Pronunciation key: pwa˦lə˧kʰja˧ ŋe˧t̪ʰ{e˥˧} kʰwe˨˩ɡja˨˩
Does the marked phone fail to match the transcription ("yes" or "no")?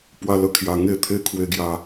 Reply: yes